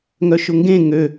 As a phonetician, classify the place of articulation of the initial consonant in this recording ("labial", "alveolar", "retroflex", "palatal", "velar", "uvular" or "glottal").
velar